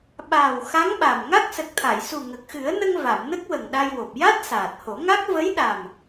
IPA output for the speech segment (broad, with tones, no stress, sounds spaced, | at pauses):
ɓ aː˨˩ w x a˧˥ ŋ ɓ a˨˩ m ŋ a˦˥ k̚ s ə˨˩ k̚ t̪ʰ a˨˩˨ j s u˨˩ ŋ ə˨˩ k̚ x ɨ˨˩˦ ə̯ n ə˧ ŋ v a˨˩˨ m n ə˦˥ k̚ w ə˨˩ ŋ ɗ a˧ j w o˨˩ p̚ j a˦˥ t̚ s aː˨˩ t̚ h o˨˩˦ ŋ a˦˥ k̚ v ə˧˥ j ɗ a˨˩ m